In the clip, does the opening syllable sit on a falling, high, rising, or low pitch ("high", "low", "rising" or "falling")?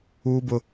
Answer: high